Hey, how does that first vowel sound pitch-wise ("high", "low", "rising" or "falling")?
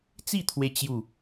falling